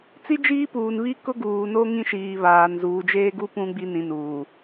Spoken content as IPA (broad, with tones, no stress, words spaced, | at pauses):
t͡si˦d͡ʒiː˦puː˨nβi˦ kʊ˦ɡuː˨no˦ ŋĩ˦ʃiː˨βaː˨n zuː˨d͡ʒeː˦ɡu˦ pũ˦ɡ͡bi˦ nĩ˨nuː˨